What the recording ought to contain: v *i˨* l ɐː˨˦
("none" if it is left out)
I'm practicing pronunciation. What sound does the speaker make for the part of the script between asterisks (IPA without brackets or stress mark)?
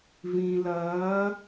ĩ˨